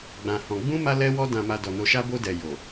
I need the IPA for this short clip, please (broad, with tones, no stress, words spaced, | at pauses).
ɡ͡bã˧hɔ̃˧ ɡ͡bũ˦ ma˦lɛ˦wɔ˦ dã˧ma˧ dɔ˨no˧ʃa˦ bo˧dɛ˨ jo˨